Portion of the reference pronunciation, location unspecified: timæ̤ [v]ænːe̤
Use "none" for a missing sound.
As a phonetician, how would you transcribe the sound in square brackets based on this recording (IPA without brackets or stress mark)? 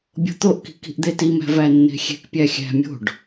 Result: v